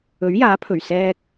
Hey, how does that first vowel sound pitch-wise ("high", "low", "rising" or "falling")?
rising